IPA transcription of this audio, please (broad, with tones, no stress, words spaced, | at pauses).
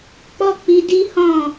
k͡pɔ˦k͡pi˧ di˦ hɔ̃˦˨